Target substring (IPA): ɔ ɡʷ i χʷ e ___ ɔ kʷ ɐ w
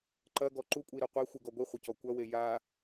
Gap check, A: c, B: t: A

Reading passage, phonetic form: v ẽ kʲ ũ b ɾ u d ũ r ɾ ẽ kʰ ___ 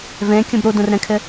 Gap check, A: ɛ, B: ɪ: B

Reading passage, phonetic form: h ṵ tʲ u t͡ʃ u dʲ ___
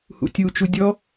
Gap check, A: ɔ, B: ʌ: A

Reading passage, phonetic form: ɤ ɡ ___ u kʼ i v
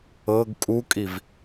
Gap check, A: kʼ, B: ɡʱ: A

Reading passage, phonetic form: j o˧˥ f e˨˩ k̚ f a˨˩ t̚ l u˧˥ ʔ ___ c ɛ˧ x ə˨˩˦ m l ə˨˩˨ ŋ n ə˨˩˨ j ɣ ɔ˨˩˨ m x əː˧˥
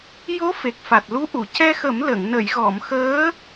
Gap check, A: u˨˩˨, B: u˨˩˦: A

